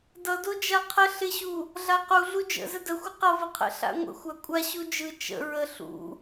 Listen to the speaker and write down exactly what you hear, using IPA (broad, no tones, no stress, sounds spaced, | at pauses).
d ʌ d o d͡ʒ a qʰ ə ɬ ɪ ɕ u | ɮ a q u ɮ u d͡ʒ ə̰ z ə d ə xʷ ɪ q ʌ v ɪ qʰ ə̰ ɬ a̰ ŋʷ ə̰ xʷ a kʷʼ a ɕ u d͡ʒ ɯ t͡ʃ ə̰ ɹ ə ɬ ṵ